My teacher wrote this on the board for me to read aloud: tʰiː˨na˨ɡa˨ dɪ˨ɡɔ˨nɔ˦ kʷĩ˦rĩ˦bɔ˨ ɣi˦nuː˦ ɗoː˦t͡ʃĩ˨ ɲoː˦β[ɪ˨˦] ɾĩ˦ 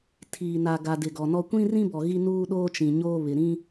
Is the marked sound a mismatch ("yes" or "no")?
yes